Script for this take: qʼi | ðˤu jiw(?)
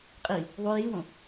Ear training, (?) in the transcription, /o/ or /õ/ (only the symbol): õ